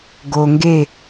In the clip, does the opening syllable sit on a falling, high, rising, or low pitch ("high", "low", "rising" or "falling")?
low